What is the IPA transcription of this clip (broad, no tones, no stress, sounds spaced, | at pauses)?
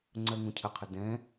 ŋ͡ǀ ɜ ŋ ũ cʰ ə qʰ ə d ɛ̃